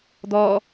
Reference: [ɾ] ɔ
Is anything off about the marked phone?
yes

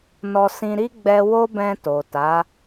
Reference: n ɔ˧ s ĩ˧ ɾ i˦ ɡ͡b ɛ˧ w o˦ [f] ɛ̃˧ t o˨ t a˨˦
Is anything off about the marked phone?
yes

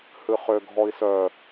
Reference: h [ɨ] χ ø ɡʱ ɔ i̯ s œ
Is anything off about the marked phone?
no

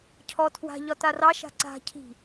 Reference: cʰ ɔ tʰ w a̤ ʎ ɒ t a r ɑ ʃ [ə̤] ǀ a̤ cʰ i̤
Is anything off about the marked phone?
yes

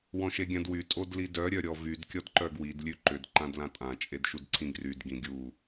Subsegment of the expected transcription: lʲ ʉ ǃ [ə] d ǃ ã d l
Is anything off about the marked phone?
yes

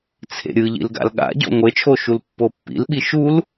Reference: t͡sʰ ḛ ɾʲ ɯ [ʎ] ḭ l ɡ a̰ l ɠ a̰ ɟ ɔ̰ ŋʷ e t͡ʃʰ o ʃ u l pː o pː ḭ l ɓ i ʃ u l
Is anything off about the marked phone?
no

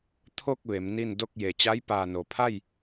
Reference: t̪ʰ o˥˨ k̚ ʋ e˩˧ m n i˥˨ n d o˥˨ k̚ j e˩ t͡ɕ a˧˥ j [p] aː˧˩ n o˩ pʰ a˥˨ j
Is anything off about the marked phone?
no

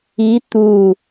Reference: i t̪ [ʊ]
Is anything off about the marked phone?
yes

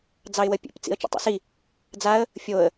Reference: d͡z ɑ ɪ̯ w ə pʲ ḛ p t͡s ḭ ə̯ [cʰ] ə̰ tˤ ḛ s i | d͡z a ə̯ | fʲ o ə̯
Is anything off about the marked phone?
yes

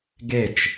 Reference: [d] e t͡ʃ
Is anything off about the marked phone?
yes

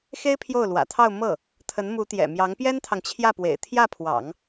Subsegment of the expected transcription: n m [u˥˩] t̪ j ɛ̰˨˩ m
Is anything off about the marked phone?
yes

